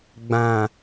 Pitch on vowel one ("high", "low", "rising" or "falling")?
low